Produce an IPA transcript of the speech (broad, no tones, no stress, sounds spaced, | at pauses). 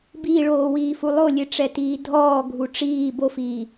b iː ɭ oː w iː f u lˠ o lʲ e ʈ͡ʂ ɛ t iː dʱ ɔː ɡʱ u ʈ͡ʂ iː b o f iː